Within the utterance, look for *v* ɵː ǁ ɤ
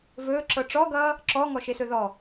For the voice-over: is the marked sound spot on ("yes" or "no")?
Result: yes